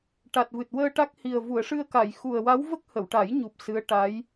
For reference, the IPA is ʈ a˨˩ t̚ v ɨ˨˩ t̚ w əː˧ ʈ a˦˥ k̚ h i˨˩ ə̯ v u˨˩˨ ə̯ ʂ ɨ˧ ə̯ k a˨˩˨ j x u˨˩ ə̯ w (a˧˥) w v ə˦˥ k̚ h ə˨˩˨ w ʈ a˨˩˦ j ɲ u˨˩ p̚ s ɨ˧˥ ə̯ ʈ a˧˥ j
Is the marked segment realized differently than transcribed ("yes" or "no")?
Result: no